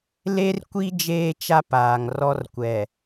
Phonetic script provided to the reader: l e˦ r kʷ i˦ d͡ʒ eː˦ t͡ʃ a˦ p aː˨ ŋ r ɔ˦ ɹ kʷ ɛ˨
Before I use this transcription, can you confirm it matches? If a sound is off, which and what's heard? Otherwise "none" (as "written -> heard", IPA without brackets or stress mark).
ɹ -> r